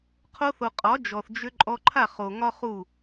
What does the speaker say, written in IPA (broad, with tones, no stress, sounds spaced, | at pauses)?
qʰ o˧ θ o˨ qʼ ɒ˨˦ d͡ʒ ɔ˨ θ d͡ʒ ʏ˧ ǃʼ ɔ˧ ǃʰ a˦˨ χ o˨ ŋ ɒ˦ χ u˦˨